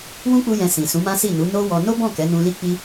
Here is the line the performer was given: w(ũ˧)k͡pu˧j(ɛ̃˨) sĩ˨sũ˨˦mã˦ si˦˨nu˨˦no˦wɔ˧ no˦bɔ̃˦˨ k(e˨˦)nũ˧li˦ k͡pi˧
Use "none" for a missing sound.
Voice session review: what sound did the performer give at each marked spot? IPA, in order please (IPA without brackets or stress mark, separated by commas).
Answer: ũ˦, ɛ̃˨, ɛ˨˦